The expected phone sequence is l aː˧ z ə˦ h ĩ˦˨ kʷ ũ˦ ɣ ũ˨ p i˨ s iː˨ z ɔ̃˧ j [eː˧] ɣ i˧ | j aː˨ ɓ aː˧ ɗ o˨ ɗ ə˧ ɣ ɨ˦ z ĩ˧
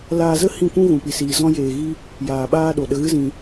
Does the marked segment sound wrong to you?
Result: yes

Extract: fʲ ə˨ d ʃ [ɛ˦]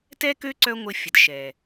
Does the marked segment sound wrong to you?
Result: yes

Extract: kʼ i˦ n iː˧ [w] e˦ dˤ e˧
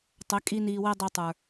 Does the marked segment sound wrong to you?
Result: no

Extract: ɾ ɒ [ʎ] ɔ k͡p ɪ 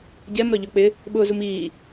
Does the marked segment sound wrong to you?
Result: no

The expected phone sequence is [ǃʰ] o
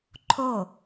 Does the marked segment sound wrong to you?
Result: no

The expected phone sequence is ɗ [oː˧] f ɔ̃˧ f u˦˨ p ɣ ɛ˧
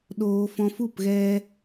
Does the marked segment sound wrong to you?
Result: no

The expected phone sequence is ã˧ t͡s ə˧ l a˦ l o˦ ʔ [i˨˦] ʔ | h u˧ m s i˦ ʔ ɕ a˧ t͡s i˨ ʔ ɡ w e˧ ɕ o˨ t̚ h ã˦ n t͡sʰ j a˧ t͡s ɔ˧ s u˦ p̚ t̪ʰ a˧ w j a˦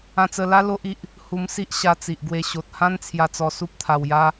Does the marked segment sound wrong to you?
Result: yes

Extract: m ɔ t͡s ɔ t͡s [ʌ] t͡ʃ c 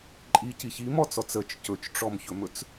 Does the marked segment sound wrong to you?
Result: yes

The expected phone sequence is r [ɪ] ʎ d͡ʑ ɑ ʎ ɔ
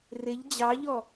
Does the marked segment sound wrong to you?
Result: no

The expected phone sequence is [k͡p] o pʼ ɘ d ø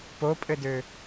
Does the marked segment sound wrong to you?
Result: yes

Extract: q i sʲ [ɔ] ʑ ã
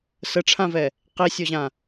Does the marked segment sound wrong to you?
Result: no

